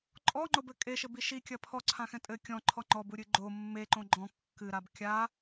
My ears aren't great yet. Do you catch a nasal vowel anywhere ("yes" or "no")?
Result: yes